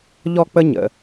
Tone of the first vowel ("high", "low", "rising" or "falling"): high